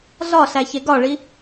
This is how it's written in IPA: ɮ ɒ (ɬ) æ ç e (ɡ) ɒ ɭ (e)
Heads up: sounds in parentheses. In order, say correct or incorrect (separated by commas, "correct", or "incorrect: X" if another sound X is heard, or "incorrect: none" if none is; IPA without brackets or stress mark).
correct, correct, incorrect: i